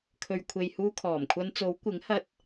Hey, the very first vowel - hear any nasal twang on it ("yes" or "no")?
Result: no